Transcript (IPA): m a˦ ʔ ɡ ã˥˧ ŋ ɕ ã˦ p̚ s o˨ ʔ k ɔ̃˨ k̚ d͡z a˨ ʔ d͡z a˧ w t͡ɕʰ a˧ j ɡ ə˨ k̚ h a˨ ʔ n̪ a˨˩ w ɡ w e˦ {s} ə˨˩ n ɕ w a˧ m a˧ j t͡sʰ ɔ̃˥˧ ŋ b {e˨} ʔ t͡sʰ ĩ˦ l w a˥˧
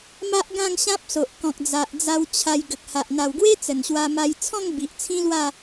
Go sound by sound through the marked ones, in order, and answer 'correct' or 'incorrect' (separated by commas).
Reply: incorrect, incorrect